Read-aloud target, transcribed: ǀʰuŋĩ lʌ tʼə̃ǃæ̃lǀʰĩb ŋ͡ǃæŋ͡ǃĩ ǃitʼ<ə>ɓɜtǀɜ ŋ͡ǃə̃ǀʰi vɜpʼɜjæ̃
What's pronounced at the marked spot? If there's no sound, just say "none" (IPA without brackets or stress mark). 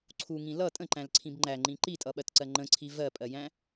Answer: ʌ